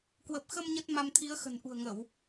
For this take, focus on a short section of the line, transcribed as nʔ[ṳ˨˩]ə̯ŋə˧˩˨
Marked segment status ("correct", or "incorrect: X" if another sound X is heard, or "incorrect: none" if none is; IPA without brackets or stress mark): correct